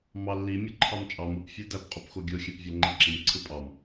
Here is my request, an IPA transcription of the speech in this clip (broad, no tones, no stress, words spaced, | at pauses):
mɑlːi mʲɯǃʰɑmt͡ʃʼɑm ɯp fʲɯdæp qʼupxoɡʲo xʲæpvʲɑŋ͡ǃiǁim ǀʰɯpʼɑm